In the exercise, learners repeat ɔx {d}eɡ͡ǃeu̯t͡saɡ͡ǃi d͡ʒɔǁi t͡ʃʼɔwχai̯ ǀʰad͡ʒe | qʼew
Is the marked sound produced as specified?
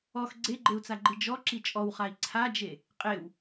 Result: no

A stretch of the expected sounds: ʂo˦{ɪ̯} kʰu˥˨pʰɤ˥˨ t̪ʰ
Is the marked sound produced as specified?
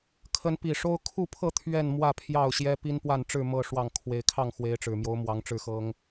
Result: no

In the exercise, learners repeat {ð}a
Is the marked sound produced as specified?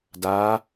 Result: no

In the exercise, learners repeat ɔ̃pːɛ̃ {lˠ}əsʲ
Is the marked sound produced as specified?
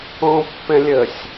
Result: no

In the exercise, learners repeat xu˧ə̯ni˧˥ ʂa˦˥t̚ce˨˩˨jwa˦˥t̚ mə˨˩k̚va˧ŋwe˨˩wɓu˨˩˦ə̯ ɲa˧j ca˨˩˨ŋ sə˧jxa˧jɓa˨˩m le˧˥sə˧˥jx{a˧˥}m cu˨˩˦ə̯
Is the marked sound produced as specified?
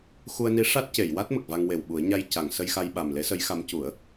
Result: yes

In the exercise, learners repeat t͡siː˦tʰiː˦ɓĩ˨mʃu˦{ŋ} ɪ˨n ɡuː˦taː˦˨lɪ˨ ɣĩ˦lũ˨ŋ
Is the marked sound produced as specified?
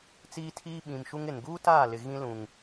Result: yes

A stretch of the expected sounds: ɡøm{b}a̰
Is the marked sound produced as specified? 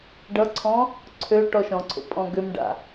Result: no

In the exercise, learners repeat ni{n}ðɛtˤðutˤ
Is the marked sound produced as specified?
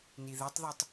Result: no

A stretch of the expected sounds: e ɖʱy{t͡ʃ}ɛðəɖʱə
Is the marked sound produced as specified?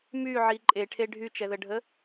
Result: yes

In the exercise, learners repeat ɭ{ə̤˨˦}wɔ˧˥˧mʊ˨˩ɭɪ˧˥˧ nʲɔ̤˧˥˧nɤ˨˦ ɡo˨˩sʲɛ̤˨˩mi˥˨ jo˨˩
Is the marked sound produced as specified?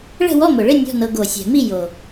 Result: no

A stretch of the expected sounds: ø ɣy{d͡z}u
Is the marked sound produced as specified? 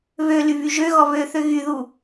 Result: no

